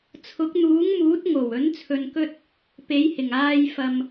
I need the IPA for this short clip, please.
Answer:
t͡sʰʊ˨˥k̚n̪uː˨˥ŋmuː˨˥t̚ ŋo˨˩wɵ˨˥n t͡sʰɵ˧nkɵ˥t̚ | pe˨˥jhɪ˨˩ŋaː˧jfɐ˨m

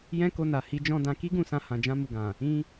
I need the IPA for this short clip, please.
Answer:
jɛ̃˦ko˧na˨ hi˨˦d͡ʒɔ̃˧ dã˨ki˧ɡũ˨sã˨ hã˨d͡ʒã˧mu˨ɡã˨ | ĩ˧

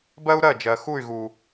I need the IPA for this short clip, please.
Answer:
bɜ˦u̯ ɾɜ˦˨d͡ʒɜ˨ xu˦˨y̯ɣu˨

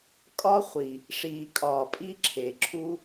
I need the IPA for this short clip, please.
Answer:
kʼɒ˦χʷi˨ | ʂiː˨kʼɒː˨pʼi˦ ǁʰe˨ǁʰu˦

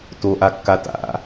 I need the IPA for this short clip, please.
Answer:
toʔakːa ta̰

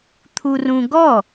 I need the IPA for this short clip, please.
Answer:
t̪ʰurũɡɔ

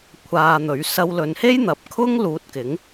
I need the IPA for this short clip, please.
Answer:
kʷʰaː˧n̪ɵ˨˥ɥ sɐ˧wlɵ˨˧nhe˥j n̪ɐ˨˥p̚kʰʊ˥ŋ luː˧t̚kɪ˨˥ŋ

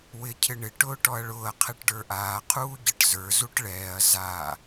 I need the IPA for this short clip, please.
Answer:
wɪ cʰɪɳɪ ʈʊːʈɔɐ̯ɭʊːɐ̯ qʰɛʈɖə˞ʔaː qʰuːɟəʈ zə˞ zuʈɭɛːɐ̯ za

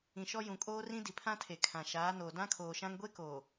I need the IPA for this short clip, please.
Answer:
ĩ˨ʃɔ˦ jũ˨kʼoː˦rĩ˦ di˨pʰã˦tʰe˨ kʰã˨ʃaː˨˦noː˨ dã˦ kʰoː˨ʃã˦ŋ ɡʷe˦ koː˨

